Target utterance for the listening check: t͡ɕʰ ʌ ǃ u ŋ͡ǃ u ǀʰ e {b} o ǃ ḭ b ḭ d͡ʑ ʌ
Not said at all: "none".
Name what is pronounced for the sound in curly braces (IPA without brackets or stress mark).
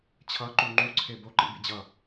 b